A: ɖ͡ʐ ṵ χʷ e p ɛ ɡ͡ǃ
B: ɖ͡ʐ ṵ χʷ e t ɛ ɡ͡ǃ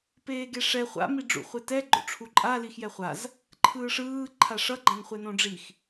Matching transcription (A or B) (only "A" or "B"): B